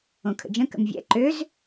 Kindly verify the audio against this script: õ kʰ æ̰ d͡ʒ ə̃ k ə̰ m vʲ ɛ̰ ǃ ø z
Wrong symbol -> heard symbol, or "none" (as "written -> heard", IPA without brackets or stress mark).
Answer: æ̰ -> ə̰